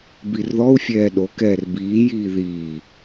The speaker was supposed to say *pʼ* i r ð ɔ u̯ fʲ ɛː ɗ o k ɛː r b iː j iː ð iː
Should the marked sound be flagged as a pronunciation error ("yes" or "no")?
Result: yes